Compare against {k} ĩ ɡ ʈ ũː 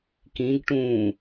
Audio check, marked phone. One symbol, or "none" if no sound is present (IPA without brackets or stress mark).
k